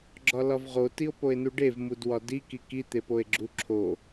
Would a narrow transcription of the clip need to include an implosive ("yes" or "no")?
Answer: no